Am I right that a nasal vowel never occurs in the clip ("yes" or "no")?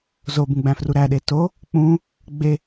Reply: no